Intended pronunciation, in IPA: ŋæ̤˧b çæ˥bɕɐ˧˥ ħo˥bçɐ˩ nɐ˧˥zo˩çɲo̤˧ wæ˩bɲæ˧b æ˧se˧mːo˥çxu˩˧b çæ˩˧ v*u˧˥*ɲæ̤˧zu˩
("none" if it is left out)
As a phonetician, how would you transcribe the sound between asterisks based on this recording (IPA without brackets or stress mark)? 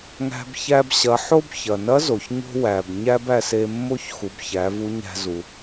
u˧˥